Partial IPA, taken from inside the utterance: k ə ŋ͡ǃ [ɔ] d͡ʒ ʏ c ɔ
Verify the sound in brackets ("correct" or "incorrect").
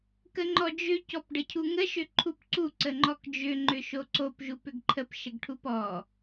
correct